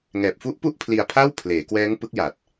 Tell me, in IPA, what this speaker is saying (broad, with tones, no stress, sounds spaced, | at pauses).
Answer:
ŋ ɛː˨˩ p̚ f u˦˥ ʔ p u˥˩ ʔ pʰ l i˧ a̯ pʰ aː˥˩ w pʰ l eː˩˦ k w ɛː˦˥ ŋ p ɯ˦˥ k̚ j a˨˩ t̚